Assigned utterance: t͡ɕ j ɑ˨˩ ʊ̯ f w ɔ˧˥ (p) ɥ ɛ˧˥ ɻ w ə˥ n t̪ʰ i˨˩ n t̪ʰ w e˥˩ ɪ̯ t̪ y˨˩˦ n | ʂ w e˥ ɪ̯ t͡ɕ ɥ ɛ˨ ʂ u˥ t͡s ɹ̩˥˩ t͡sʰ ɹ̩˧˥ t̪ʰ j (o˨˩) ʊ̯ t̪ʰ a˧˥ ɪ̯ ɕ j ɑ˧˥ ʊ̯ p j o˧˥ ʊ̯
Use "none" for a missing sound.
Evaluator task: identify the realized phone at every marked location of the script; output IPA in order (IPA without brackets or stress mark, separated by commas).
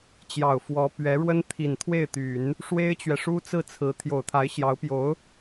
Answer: p, o˨˩